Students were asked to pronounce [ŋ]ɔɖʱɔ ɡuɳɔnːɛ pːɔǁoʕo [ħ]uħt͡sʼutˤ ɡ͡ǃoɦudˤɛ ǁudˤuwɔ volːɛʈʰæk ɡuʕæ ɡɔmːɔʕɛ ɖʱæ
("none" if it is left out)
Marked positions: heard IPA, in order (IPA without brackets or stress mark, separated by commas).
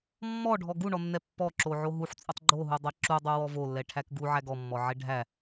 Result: mː, ɦ